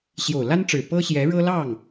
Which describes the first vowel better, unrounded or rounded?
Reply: rounded